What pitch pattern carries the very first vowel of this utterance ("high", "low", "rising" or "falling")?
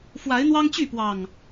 rising